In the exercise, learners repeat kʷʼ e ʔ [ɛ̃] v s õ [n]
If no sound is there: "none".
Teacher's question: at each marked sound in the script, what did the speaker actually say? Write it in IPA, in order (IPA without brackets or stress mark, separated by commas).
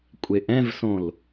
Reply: ɛ̃, l